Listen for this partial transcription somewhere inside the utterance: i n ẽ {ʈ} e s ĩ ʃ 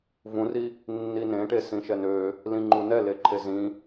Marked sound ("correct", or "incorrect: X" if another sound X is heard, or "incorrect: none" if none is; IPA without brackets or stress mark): correct